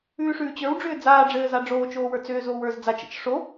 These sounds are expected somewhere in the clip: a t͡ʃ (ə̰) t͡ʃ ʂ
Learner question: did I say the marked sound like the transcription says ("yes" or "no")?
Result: yes